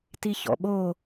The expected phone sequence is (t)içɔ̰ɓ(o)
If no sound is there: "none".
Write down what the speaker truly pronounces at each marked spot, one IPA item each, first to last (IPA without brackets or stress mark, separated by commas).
t, o